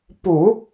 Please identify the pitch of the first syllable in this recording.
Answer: low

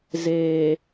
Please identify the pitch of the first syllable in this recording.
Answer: low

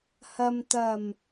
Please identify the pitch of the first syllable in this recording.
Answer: low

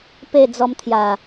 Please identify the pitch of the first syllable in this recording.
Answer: falling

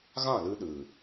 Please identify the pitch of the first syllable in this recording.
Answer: falling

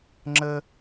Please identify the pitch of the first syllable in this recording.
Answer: high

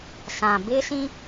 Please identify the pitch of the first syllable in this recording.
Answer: low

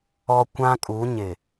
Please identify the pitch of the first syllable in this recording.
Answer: high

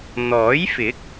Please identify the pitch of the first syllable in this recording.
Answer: rising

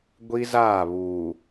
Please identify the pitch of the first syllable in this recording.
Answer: high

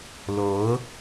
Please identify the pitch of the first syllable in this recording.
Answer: rising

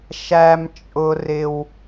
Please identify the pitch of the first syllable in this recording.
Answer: high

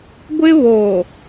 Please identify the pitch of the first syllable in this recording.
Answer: high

